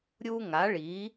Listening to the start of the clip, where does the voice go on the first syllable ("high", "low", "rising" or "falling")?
high